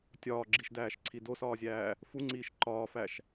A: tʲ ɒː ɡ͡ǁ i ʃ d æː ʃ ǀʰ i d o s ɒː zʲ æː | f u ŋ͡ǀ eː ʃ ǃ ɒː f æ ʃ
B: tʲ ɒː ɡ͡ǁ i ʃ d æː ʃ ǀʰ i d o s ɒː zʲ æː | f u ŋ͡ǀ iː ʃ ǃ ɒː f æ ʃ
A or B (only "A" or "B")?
B